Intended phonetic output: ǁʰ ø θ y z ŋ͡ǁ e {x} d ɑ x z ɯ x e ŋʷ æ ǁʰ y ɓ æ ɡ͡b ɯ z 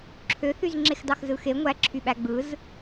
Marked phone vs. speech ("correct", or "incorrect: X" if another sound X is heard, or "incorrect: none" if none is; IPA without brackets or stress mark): correct